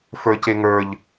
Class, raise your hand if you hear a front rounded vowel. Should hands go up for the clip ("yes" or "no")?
no